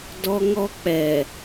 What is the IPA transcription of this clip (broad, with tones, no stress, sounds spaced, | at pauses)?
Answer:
d ɔ˦ ŋ ɔ˦ k͡p ɛ˨